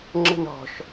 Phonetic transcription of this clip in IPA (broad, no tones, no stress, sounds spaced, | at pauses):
ŋ͡ǁ ə̤ n ɔ̤ ʃ